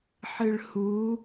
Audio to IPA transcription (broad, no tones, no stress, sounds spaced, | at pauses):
ħ ɨ ɭ h u